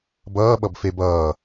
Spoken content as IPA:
bʌː ɓʌbfebʌː

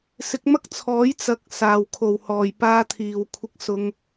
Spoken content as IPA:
sɪ˨˥k̚mɐ˥k̚t͡sʰɔː˨˥j t͡sɐ˨k̚saː˨˩w kʰo˨˩whɔː˨˩j paː˧t̪ʰiː˨˩w kʷʰɪ˧k̚sʊ˧ŋ

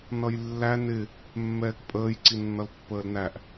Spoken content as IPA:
nʌjlːæ nɪ | mːɛːkpʼəːj ǀinːʌlpːəːlnæʔ

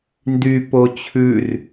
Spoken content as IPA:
ndy pot͡ɕʰʉr

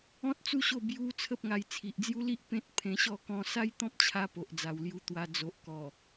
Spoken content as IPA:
ɔ̃˦t̚t͡su˦ɕo˥˧ bju˧ t͡sʰə˦p̚ŋa˧j t͡sʰi˨ʔd͡zju˦li˦ʔ pẽ˦t̚ pʰẽ˧ɕɔ˥˧ kɔ̃˧sa˦jt̪ɔ̃˦p̚t͡ɕʰa˧ po˨ʔd͡za˨˩wlju˧t̪wa˧ d͡zo˨ʔkɔ˨˩

